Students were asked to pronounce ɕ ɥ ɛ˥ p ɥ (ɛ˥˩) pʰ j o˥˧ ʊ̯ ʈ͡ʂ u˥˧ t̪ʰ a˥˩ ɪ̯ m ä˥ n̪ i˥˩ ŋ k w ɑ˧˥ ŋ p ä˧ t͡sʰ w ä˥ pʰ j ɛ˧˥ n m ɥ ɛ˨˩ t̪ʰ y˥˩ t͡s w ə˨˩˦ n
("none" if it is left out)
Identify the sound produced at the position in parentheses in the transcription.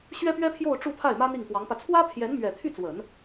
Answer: ɛ˥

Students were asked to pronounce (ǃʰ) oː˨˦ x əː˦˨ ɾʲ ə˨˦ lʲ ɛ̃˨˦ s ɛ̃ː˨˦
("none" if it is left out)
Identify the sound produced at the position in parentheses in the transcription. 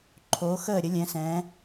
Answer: ǃʰ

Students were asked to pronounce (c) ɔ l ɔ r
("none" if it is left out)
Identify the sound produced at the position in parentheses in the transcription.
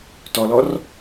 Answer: t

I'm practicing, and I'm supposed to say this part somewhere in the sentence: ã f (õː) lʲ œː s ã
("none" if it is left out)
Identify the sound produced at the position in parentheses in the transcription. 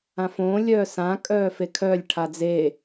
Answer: õː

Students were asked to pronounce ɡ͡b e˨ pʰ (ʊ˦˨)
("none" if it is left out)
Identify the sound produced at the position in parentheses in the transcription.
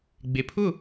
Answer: ʊ˦˨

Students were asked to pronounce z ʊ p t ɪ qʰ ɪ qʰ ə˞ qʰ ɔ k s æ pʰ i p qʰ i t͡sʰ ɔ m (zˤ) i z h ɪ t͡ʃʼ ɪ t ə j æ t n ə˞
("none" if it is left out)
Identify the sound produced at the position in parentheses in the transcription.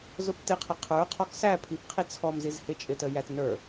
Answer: z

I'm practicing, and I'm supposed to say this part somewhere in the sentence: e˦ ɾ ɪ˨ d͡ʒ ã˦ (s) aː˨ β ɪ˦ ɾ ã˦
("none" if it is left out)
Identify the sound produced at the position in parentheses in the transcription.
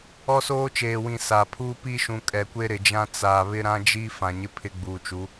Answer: t͡s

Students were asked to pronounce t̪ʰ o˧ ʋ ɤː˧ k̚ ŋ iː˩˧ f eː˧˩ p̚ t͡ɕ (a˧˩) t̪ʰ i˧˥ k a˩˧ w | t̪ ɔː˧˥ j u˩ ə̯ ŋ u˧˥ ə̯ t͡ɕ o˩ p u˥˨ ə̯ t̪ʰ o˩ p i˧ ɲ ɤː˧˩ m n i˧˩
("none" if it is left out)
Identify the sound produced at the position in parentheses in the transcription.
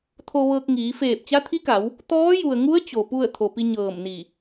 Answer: a˧˥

